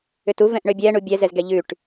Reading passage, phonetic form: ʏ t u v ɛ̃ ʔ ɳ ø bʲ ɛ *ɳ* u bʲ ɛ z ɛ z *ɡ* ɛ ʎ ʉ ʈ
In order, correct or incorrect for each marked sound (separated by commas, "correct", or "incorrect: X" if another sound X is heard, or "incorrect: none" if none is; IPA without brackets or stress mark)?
correct, correct